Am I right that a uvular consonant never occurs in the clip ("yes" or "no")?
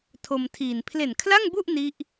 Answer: yes